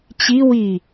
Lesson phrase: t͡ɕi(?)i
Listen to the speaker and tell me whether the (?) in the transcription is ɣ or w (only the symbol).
w